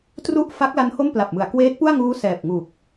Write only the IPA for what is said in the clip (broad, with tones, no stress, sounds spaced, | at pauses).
t r u˥˩ ʔ f a˦˥ k̚ l a˦˥ n h o˥˩ m p l a˨˩ p̚ m ɯ˩˦ a̯ k w eː˦˥ t̚ p u˥˩ a̯ ŋ uː˦˥ s ɛː˨˩ p̚ ŋ u˨˩ k̚